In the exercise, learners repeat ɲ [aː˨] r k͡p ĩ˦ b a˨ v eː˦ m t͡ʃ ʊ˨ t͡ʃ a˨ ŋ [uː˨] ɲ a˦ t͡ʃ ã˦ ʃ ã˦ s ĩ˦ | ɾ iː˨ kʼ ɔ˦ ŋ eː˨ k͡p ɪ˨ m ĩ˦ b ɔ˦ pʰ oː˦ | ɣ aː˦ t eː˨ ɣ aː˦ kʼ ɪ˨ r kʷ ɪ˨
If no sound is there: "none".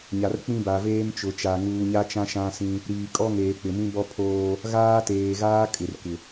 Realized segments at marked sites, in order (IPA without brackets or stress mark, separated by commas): a˨, uː˨